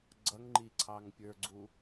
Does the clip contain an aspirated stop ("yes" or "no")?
yes